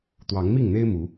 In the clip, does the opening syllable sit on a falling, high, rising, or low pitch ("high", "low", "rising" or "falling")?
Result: rising